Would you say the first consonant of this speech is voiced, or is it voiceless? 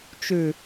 voiceless